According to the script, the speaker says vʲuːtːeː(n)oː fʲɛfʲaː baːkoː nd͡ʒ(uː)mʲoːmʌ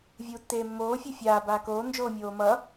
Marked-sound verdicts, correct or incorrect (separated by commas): incorrect, incorrect